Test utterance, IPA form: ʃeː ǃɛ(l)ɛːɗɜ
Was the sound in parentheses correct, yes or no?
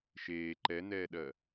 no